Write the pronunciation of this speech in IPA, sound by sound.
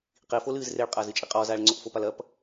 q i f o l ɨː z r e ɭ qʼ a z ɨ t͡ʃʼ i qʼ ɔː z aː ɭ ŋ͡ǀ o ʔ f o p a l ɐ p

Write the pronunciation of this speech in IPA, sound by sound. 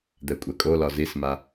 d̪ ɛ kʷʼ ɛ kʼ o l ɒ z i s m a

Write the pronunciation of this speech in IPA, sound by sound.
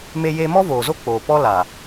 m e˦ j eː˦ m ɔ˦ v oː˨ z o˦ k͡p oː˨ p ɔ˦ l a˨

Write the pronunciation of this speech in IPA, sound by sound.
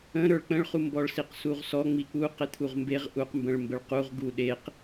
ə̃ ɾ ə˞ ɭ k͡p ə̃ ɭ χ u m b ɔ ɭ s i q s u ʁ s ɔ ŋ͡m i k͡p u q e t̪ʰ u ʁ m b e ʁ ʔ u q m b ə̃ ɭ m b ə ɭ q u ʁ ɡ u ɗ e q

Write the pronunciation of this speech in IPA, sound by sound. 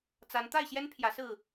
t͡s a˨˦ n t̪ a˥˨ ɪ̯ ɕ j ɛ˦ n pʰ j ä˨˦ s ɹ̩˥˨

